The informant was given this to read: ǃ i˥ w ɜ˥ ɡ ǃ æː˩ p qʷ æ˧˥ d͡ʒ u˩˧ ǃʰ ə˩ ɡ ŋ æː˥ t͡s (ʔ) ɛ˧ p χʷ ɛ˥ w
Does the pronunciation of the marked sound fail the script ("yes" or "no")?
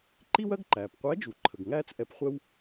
no